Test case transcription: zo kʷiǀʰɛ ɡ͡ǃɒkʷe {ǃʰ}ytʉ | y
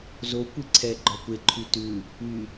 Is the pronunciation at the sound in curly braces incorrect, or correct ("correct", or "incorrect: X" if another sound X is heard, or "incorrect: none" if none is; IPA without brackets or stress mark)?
correct